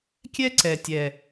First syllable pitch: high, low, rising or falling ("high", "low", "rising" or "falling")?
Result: high